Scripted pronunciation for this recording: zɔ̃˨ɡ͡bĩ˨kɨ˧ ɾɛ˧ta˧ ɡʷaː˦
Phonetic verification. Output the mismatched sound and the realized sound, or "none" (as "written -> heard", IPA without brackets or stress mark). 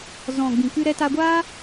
none